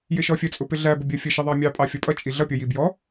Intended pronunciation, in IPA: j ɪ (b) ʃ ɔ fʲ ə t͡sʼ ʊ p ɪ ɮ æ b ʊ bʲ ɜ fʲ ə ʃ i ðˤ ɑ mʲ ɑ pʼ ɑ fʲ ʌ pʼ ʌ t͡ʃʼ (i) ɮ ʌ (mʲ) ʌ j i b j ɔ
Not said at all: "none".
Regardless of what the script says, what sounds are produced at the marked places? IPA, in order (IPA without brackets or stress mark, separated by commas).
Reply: none, i, pʲ